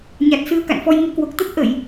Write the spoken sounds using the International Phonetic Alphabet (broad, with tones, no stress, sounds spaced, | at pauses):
ɲ a˨˩ t̚ s ɨ˧ ə̯ k a̰˧˨ n f ɔ˧ j ŋ u˧ k w o˨˩ k̚ t̪ ə˦˥ t̚ ʔ ə˧˩˨ j